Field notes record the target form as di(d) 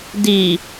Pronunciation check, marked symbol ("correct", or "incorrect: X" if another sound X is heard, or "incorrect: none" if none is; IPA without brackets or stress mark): incorrect: none